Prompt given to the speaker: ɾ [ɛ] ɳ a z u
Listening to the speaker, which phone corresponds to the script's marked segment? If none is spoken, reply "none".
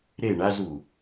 e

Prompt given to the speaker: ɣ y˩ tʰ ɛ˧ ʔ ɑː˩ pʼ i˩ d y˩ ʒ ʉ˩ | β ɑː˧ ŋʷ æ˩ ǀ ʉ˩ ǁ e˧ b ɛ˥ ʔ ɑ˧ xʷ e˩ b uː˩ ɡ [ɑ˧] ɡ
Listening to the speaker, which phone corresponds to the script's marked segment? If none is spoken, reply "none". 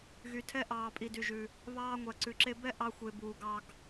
ɑ˧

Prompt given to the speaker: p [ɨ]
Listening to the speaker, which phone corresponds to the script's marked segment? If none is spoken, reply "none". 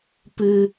ɨ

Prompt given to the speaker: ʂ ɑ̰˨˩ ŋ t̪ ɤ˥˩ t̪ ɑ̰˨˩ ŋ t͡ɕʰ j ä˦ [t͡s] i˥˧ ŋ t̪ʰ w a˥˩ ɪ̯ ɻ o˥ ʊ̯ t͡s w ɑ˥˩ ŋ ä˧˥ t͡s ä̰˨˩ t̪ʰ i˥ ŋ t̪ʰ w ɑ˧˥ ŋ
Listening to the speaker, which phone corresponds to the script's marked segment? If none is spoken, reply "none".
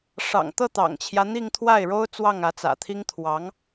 n̪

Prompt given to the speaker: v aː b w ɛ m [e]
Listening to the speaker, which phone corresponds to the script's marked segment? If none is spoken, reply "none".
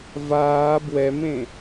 ẽ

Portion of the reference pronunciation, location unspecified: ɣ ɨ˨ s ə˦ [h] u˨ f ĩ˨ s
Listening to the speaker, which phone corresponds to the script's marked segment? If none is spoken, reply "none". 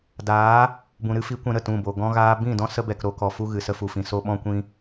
f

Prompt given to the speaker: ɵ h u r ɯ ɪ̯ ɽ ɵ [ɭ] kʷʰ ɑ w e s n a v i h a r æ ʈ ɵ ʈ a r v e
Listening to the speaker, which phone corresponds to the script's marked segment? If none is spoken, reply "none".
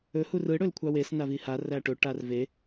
l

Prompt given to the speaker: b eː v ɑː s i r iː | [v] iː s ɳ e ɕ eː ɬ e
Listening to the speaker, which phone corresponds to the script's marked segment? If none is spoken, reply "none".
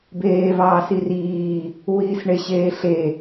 w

